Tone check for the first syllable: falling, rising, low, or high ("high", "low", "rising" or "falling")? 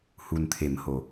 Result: low